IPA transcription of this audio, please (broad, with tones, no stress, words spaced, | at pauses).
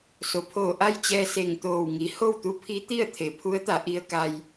so˩pʰoː˧˩ ʔa˥˨jt͡ɕɛː˧ se˧˩ŋt̪oː˧˩wŋi˩˧ ho˥˨wt̪u˧˥pʰi˧˥ t̪i˥˨ə̯ t̪ʰe˩˧pʰu˧˥ə̯t̪a˩˧ ʔi˧ə̯ka˧j